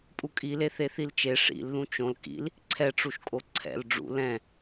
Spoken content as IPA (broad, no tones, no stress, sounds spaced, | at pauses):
pʼ u kʼ i l e θ e θ i l t͡ʃ e ʂ ḭ l ð ũ t͡ʃ õ l k ḭ l | ǀʰ ɛ ʈ͡ʂ u ʃ kʼ o ǀʰ ɛ̰ l ɖ͡ʐ ṵ l ɛ̃